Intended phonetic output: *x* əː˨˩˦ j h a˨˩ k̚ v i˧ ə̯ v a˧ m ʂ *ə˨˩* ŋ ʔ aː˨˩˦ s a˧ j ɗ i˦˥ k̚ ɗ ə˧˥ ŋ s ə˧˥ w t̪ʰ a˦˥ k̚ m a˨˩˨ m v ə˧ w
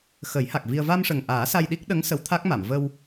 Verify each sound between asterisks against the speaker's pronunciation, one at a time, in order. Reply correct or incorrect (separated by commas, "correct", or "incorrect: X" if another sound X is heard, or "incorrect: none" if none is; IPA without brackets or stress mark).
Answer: correct, correct